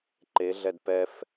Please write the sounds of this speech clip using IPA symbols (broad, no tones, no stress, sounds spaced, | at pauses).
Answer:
ǃ e ɮ ɛ d p ɛ f